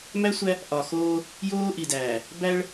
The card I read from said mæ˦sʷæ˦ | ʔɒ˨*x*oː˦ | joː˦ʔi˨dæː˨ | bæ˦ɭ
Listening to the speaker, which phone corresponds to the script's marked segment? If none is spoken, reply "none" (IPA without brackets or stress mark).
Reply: x